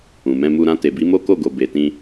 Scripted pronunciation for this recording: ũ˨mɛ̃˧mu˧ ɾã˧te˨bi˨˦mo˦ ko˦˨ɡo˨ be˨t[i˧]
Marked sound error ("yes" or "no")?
yes